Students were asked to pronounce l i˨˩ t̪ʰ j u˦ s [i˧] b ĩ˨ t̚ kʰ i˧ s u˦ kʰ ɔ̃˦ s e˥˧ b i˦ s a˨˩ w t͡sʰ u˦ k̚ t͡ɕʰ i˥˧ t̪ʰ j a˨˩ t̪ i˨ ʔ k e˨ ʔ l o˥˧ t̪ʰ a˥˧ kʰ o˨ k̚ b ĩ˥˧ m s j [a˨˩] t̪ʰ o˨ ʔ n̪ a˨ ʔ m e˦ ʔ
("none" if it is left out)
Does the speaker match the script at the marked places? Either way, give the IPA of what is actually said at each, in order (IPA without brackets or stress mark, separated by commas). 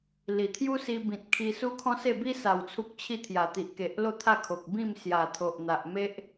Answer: i˧, a˨˩